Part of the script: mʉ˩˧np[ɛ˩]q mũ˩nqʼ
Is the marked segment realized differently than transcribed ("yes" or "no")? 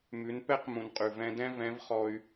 yes